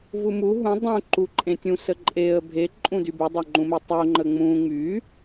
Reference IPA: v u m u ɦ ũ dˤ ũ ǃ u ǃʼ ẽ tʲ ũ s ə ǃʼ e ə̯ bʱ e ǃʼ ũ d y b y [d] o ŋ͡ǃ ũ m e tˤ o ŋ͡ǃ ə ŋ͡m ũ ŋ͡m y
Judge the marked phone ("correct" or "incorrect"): incorrect